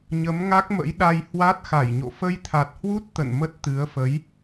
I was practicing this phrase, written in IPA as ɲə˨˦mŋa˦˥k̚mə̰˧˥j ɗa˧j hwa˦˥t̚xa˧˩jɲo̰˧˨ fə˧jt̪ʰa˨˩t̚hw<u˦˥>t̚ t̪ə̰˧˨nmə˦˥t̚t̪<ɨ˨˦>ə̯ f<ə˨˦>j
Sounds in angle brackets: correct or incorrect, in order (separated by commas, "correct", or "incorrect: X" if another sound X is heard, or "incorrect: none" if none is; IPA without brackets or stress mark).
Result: correct, correct, correct